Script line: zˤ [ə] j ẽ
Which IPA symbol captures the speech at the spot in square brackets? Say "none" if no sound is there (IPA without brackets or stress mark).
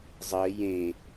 ə